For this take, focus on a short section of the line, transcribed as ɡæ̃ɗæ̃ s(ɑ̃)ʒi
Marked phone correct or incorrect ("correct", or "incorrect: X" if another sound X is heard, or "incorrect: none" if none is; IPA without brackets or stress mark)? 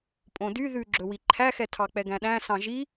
correct